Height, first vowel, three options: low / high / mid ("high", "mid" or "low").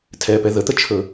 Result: mid